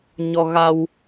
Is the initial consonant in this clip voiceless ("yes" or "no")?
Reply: no